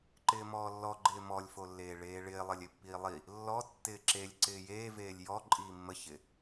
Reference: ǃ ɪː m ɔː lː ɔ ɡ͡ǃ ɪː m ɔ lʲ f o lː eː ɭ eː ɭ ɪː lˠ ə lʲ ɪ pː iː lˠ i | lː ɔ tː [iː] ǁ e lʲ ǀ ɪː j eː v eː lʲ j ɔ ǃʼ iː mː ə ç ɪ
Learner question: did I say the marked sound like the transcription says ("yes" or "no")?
no